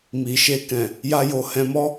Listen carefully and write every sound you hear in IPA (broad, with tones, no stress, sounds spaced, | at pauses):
m i˨ ʃ e˧ k ɛ̃˨ | j a˧ j o˨ h ɛ̃˧ m ɔ˦